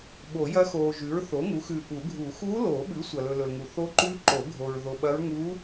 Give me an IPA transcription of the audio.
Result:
ɓo˨˩˦jɐ˧˥xoː˨ʒʉ˩˥ɹ θo˩˥ŋu˩˥xʉ˨ ʔu˨˩˦ɡʱu˨˩˦ xuː˧˥loː˨˩˦ɓʉ˩˥ sʷɐ˨lɵ˨lɵ˨lŋu˨ θo˧˥ǃʉ˧˥ǃo˨˩˦ ɡʱo˨ɹ ðo˨ɓɐ˧˥ɹ ŋuː˧˥

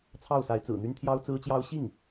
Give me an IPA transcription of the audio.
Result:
t͡sʰɑ˥˩ʊ̯sa˧˥ɪ̯t͡sɹ̩˨˩n̪y˥n t̪ʰjɑ˥ʊ̯t͡sɹ̩˥t͡ɕjɑ˥ʊ̯ ɕi˥˩ŋ

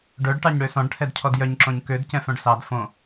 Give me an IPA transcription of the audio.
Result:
ɖœɖʈɑɲ ɽøsɔ̃ɖʈʰɛd cʰɔdjœɲǁõɲ kød cɛ̃fœ̃ɖsɑd fõ

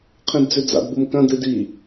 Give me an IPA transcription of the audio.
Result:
qʰĩdd͡zʉd͡za̰d bumkɐ̃ dɨdi

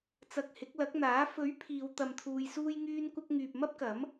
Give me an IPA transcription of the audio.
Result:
t͡sɐ˧k̚hɪ˨˥k̚ lɐ˨˥k̚n̪aː˨˥ fɵ˨˥ɥ pʰiː˨˧w t̪ɐ˧mt̪ʰuː˧jsuː˥j ŋyː˥nkʷɐ˥k̚ ŋyː˨p̚mɐ˥p̚kɐ˨˥m

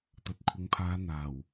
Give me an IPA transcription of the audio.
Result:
t̪ɐ˨t̚kʷʰɪ˨˧ŋpʰaː˨˧ n̪aː˨˩w

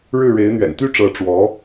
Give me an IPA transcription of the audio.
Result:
ɻɻ̩˥˩ɻe˧˥ɪ̯ n̪ɥɛ̰˨˩nt̪y˥ʈ͡ʂɤ˧˥ ʈ͡ʂwɔ˧˥

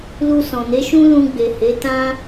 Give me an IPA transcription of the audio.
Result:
lu˧sɔ̃˨ne˨˦ʃũ˦ lũ˧ɡ͡be˨ he˨˦ tã˦

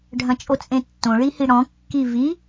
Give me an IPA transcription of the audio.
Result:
ɖʱɐ̃t͡ʃʼot͡sʼẽtːõ ɭihiɽɔ̃ kːivi

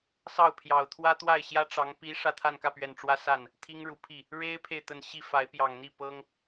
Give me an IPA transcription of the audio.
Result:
sɑ˥˩ʊ̯pʰjɑ˨˩ʊ̯ t̪ʰwä˥t̪wa˥˩ɪ̯ ɕjä˥ ʈ͡ʂɑ˧˥ŋ pi˧˥ ʂä˥˧t̪ʰa˥˧nkä˥˩pɥɛ˨˩n ʈ͡ʂwä˥sa˥˩n | t̪ʰi˥ŋɻu˧˥pʰi˥˩ | ɻe˥ɪ̯pʰe˨ɪ̯ t̪ə˥˧n ɕi˥˩fa˧˥ɪ̯pjɑ˨˩ŋn̪i˥˩ pɤ˥ŋ

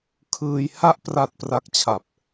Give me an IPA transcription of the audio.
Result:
kʰɯː˧j ha˦˥ʔpra˨˩t̚ pra˥˩k̚t͡ɕʰa˨˩p̚

